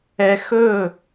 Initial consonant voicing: voiceless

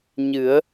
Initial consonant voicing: voiced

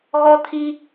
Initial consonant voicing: voiced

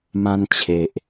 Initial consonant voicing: voiced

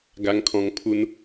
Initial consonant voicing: voiced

